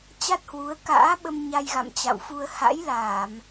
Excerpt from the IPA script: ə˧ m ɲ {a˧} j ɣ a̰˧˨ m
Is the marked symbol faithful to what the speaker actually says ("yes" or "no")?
yes